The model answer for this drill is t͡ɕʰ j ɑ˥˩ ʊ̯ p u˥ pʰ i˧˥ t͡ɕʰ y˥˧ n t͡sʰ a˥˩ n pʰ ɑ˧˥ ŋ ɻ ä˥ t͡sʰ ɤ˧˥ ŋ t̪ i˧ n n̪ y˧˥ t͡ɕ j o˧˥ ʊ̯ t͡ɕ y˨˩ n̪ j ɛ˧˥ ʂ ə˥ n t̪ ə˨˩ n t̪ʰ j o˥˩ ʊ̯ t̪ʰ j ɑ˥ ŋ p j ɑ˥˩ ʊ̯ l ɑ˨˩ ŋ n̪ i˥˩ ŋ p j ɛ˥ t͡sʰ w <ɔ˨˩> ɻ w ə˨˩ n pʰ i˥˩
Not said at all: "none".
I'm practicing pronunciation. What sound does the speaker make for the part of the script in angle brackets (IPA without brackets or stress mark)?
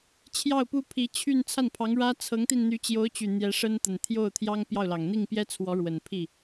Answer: ɔ˧˥